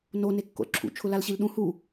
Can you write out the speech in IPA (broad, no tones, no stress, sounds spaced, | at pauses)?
n o n e kː o̰ l ǁʰ ṵ t͡ʃʰ ʊ l a l ɕ i l ɗ ũ h u